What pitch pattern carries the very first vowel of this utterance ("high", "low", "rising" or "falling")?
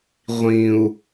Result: low